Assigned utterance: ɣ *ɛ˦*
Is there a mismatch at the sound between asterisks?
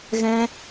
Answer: yes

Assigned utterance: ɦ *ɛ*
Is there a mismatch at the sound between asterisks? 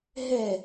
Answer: no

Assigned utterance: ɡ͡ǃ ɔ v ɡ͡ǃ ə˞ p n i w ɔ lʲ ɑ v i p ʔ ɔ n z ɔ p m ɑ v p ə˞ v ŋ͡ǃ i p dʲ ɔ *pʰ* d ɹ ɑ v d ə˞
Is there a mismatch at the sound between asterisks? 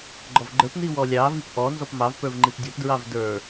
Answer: yes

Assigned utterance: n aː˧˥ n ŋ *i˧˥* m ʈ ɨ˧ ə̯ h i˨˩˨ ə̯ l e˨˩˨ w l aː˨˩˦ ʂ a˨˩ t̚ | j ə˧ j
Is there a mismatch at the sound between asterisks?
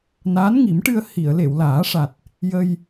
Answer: yes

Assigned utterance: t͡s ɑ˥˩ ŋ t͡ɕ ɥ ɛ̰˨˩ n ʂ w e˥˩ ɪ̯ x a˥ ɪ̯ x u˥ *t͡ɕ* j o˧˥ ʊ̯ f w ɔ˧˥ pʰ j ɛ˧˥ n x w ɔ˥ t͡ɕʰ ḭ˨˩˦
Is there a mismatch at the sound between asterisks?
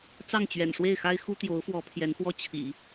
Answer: yes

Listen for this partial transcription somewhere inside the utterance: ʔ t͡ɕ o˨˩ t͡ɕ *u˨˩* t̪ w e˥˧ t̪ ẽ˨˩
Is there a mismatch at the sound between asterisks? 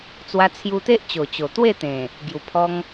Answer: yes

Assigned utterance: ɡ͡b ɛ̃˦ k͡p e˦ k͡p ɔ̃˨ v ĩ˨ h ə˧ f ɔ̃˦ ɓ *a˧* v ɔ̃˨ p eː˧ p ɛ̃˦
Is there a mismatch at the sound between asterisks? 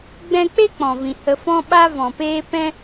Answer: no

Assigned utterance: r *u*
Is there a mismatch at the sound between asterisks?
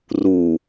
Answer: no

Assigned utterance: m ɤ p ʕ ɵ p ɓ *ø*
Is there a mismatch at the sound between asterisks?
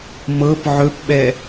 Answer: yes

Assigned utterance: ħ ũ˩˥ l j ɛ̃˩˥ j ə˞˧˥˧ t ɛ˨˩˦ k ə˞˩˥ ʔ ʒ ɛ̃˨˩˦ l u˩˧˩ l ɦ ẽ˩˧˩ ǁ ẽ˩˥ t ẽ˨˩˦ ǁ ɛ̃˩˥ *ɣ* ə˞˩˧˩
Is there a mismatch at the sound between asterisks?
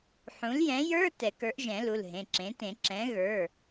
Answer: no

